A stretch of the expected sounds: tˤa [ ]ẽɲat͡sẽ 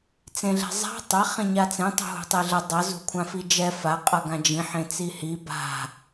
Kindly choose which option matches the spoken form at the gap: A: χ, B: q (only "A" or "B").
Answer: A